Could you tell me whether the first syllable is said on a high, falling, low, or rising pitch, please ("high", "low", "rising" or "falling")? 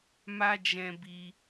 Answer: high